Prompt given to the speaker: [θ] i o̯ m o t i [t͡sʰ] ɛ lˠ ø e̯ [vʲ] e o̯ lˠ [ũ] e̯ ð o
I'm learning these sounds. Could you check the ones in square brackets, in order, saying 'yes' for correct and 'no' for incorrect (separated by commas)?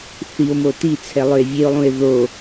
yes, yes, yes, yes